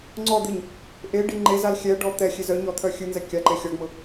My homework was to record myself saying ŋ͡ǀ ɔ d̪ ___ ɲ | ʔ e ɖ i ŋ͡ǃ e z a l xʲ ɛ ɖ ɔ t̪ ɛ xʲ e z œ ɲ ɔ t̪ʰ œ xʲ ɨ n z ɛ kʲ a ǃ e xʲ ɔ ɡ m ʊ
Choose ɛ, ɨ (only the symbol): ɨ